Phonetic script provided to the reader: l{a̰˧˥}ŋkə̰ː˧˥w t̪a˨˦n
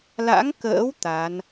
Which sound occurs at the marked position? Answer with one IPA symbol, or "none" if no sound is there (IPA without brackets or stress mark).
a̰˧˥